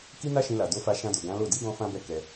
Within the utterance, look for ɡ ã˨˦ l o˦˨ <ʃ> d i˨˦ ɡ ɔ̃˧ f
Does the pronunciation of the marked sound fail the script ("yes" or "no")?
yes